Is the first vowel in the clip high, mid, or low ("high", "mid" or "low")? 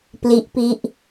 high